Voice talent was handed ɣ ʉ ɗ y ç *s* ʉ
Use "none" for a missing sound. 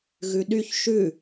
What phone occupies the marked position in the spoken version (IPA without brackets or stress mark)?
ʃ